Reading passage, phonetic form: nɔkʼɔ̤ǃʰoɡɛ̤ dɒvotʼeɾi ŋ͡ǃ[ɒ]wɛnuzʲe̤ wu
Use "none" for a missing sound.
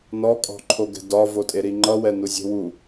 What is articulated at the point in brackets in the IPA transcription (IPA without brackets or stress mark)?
ʌ